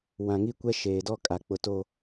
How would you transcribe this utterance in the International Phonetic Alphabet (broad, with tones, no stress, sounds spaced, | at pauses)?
w ã˨ ŋ i˦ kʷ ɛ˦ ʃ eː˨ d ɔ˦ kʼ a˨ k͡p ʊ˨ t o˨